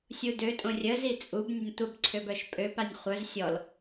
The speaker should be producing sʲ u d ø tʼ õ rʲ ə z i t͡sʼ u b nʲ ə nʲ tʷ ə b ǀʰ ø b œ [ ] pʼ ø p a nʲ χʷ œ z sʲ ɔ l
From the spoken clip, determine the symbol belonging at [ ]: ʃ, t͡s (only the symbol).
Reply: ʃ